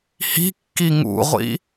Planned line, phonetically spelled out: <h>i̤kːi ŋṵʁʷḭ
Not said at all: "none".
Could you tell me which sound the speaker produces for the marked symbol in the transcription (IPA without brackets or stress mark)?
h